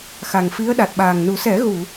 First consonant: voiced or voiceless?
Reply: voiceless